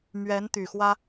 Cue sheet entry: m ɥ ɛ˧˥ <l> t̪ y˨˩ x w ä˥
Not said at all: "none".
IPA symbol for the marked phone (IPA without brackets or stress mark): n